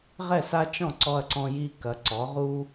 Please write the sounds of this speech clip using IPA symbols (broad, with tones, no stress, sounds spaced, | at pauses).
ʁ ɛ˧˩ s a˧ t͡ʃ ɔ̃˧˩ ǀ ɔ˧ ɐ̯ ǀ ɔ̃˧ j i˧ k ɐ˩˧ ǀ ɔ˩˧ ʁ u˧